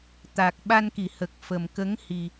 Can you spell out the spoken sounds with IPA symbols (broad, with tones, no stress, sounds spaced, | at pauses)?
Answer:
t̪ a˨˩ k̚ ɓ a˧ n k i˨˩˨ h ə˨˩ k̚ f ə˨˩ m k ə˧˥ ŋ h i˨˩